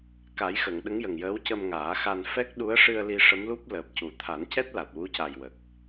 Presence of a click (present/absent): absent